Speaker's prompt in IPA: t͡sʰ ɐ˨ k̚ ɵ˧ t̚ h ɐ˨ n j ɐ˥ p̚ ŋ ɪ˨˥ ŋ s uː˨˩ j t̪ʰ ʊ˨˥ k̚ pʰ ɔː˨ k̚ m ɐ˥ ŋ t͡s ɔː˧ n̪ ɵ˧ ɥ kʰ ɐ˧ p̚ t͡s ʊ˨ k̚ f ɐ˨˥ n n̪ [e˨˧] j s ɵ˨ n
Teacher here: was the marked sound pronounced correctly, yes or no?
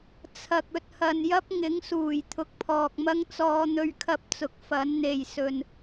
no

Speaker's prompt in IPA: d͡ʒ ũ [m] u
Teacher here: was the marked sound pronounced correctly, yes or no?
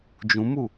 yes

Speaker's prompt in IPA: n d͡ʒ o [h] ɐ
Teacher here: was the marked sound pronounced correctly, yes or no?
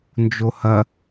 yes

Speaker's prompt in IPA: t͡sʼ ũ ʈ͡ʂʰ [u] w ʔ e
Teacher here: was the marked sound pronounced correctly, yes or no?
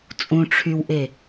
no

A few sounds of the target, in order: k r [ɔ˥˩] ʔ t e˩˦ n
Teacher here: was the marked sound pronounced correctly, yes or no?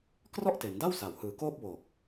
yes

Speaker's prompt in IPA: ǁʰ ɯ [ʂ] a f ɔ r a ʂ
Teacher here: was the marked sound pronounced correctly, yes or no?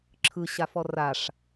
no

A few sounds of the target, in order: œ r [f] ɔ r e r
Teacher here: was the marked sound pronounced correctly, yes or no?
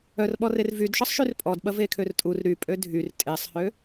no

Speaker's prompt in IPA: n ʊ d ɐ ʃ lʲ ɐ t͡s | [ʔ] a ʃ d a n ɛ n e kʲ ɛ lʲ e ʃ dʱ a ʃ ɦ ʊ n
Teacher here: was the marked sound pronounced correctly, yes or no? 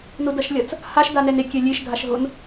no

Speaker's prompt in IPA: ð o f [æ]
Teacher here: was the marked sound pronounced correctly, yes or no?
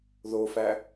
yes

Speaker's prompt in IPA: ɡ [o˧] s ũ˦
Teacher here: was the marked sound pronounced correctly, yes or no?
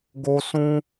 yes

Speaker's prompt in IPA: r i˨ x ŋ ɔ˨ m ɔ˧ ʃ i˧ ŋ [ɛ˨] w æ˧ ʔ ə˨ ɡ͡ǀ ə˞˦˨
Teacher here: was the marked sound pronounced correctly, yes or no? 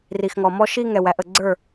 yes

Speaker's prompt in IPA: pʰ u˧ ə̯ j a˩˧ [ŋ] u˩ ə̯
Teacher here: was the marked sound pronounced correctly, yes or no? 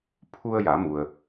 no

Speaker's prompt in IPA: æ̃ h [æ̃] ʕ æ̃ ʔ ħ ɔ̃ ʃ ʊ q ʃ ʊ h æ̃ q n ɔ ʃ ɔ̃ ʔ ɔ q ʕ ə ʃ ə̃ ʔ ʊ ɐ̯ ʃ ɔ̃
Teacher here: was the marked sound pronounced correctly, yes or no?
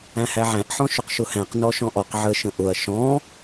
no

